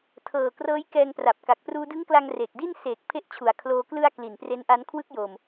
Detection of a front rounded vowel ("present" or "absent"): absent